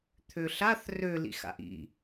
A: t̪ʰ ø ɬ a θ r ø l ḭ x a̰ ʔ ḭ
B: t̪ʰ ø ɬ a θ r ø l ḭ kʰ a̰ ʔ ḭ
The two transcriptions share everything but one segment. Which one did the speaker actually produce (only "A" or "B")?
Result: A